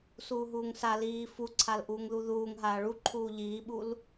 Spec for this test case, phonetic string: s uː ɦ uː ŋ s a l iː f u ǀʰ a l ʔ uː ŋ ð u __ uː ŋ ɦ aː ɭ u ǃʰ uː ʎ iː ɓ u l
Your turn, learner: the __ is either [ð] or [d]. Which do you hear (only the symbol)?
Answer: ð